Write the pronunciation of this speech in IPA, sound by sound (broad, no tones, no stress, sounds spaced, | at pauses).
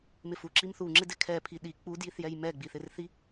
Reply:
m ɪ f u ǁ i m θ u ŋ͡ǁ ɪ d ɪ kʰ ɛ pʰ i ɗ i k͡p u d j i θ j ɛ j m ɛ ɡ͡b i θ ɪ r θ i